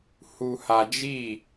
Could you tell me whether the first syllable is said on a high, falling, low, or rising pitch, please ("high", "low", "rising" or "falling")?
low